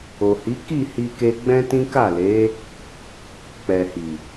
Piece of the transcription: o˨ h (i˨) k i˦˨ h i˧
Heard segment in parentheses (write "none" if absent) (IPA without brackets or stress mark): i˨˦